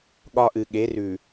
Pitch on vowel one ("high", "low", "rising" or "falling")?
high